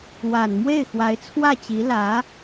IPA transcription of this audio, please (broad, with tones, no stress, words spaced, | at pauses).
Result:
wa˨˩n mwe˥˩ɪ̯xwa˧˥ɪ̯t͡sʰwä˥˩t͡ɕi˧˥ lä˧˥